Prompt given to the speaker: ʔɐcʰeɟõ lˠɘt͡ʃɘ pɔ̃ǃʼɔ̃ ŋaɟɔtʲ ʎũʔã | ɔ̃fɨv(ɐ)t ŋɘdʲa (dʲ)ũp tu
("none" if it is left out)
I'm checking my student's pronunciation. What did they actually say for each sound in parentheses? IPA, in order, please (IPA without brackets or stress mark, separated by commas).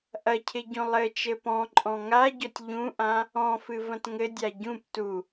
ɐ̃, ɟ